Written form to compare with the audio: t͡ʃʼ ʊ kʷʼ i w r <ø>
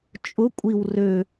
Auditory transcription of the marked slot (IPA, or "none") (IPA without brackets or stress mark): ø